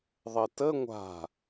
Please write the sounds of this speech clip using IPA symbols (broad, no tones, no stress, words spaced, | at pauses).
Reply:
ðˤətə ŋʷa̤